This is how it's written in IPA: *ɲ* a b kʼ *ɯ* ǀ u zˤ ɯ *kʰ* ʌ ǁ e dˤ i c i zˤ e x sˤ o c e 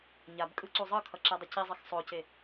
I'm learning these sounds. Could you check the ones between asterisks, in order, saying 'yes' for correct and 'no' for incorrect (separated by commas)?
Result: yes, yes, yes